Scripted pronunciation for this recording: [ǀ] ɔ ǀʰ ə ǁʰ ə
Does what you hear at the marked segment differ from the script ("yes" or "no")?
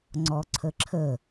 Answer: yes